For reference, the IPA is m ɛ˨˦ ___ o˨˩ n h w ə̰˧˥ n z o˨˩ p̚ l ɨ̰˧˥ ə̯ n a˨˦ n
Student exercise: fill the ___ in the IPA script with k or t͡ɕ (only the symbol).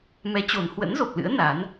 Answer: t͡ɕ